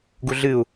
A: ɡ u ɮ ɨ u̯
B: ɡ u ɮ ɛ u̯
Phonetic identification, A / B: A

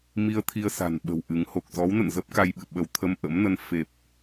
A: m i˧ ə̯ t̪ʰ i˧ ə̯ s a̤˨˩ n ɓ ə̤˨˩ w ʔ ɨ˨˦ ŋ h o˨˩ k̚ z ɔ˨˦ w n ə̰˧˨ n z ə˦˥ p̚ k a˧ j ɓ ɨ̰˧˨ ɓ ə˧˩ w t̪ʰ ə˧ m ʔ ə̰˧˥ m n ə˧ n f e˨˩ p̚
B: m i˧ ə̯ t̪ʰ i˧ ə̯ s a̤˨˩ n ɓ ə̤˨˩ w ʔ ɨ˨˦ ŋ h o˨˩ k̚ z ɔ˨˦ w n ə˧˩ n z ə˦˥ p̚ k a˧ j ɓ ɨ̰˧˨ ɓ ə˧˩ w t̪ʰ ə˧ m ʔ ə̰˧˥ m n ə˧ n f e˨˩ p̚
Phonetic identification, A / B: A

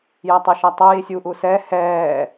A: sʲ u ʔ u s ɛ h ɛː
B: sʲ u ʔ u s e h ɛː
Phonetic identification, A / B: A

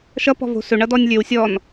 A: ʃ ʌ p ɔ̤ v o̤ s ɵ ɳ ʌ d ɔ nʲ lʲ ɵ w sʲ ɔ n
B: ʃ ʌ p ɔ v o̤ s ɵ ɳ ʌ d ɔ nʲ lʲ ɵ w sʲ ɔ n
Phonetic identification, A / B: A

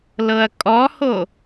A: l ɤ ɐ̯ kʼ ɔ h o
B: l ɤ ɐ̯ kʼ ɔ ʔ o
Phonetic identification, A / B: A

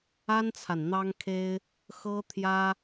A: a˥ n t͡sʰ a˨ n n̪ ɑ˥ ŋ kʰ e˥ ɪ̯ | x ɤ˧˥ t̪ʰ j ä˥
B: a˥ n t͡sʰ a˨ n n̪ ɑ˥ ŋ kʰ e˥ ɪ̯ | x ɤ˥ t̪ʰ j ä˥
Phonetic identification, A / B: B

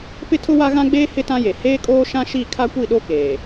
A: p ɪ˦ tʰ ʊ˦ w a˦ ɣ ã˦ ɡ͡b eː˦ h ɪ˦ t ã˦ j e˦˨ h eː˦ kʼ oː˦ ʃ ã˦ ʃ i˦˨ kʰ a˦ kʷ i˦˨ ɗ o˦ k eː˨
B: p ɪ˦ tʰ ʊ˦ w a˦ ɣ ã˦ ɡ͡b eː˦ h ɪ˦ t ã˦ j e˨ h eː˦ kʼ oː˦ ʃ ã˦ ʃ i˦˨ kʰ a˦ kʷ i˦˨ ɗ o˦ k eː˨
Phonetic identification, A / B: B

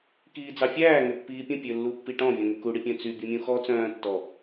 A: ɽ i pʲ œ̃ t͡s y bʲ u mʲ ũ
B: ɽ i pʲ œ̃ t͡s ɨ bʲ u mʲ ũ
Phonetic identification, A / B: A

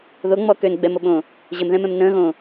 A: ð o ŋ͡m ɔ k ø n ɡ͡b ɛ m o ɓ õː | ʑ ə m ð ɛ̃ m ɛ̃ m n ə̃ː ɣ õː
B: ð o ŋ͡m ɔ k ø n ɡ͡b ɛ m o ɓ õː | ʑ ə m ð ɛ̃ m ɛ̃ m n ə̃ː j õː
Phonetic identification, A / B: A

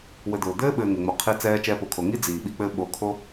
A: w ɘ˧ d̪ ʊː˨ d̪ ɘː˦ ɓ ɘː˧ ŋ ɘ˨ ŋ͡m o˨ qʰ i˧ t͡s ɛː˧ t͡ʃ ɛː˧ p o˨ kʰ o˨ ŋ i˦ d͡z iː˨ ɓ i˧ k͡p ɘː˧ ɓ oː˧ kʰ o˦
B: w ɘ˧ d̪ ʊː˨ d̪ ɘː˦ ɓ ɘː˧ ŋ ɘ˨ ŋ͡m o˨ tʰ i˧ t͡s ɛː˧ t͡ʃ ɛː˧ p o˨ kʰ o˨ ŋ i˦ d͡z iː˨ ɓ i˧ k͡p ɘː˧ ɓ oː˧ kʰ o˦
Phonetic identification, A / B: A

